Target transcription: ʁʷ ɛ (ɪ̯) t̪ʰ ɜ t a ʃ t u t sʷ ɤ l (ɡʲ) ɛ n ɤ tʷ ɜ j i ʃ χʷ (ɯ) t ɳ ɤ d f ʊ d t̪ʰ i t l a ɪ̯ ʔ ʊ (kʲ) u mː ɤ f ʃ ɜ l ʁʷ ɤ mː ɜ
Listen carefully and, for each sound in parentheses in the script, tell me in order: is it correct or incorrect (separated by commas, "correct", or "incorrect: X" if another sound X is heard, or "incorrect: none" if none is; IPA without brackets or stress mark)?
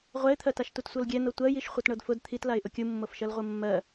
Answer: correct, correct, incorrect: ɤ, correct